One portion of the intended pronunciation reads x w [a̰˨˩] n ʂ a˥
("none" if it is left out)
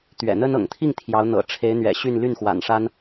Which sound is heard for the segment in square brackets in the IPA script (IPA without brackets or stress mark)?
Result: a̰˨˩